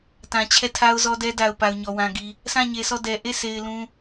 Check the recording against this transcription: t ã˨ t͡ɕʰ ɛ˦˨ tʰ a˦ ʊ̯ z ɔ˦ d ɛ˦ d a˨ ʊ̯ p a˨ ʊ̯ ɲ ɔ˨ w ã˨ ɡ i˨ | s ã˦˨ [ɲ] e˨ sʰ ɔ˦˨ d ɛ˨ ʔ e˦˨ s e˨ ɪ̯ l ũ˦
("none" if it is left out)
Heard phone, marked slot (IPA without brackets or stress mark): ɲ